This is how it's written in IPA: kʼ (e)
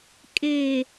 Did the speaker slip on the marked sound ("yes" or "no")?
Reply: no